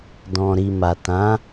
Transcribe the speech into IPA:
d ɔ̃˨ ɾ i˨ m a˨ t ã˨˦

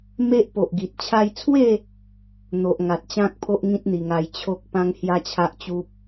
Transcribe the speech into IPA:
m e˦ ʔ p o˨ ʔ ɡ i˨ t̚ t͡ɕʰ a˧ j t͡sʰ w e˥˧ | n̪ o˨ ʔ ŋ a˨ t̚ t͡ɕ ã˦ k̚ pʰ o˦ ʔ ŋ ĩ˦ t̚ n̪ i˨˩ ŋ a˧ j t͡ɕʰ o˦ k̚ p ã˦ ŋ h j a˦ t͡ɕʰ a˦ ʔ t͡ɕ u˦ p̚

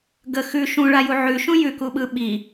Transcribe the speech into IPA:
ɡ ə x ʉ ʃ ũ ɭ a j u ʕ ʉ ʃ ũ j ʉ k u ɓ ɯ ɓ i

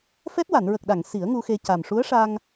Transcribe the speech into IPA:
f ɛ˦˥ t̚ w a˨˩˨ n ɹ ə˨˩ k̚ ɗ a˨˩˨ ŋ s i˨˩˦ ə̯ ŋ u˧ x e˧ c a˨˩ m ʂ u˧˥ ə̯ ʂ a˧ ŋ

